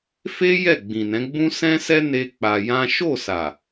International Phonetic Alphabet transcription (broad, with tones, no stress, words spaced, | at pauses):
fe˦ jɛ˦˨ɡ͡bĩ˨nɛ̃˨˦ ɡ͡bũ˦sɛ̃˦sɛ˦ ne˦k͡pa˧jã˦ ʃo˦˨sa˨